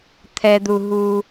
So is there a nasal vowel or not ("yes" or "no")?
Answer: no